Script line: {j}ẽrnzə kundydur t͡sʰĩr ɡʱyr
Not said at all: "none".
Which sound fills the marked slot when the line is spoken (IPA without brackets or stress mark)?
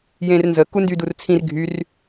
j